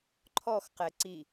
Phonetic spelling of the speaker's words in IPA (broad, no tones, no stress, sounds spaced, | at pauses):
ǃʰ ɔ x q ɛ ǀ i